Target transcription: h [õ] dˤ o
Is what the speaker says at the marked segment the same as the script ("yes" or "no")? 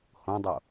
yes